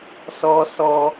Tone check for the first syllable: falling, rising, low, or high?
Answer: high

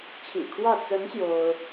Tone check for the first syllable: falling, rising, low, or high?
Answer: low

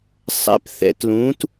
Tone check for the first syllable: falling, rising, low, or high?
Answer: rising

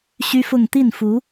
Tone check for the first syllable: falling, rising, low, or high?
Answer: high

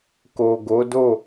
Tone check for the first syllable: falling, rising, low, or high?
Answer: low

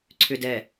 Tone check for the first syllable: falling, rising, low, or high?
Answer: low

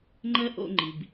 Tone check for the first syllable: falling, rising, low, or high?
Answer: high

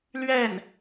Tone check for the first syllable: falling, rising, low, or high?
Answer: falling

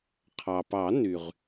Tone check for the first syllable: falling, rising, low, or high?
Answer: low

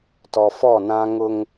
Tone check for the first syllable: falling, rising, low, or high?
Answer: low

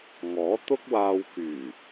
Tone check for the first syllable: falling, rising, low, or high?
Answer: rising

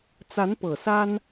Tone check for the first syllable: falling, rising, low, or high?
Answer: rising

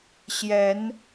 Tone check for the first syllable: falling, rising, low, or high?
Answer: rising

